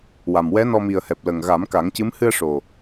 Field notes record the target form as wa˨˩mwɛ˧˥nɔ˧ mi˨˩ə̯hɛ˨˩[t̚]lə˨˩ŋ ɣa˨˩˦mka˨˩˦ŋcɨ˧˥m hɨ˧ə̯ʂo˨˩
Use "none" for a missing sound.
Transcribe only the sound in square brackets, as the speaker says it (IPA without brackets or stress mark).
p̚